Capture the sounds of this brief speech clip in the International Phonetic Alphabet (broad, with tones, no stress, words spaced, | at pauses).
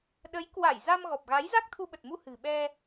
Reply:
ɗə˨˦jkwa˧˩jza˧m ɣɔ˨˩p̚ɣa˨˦j za˦˥k̚t̪ʰu˧ɓə˨˩t̚mu˧ hɨ̤˨˩ɓɛ˧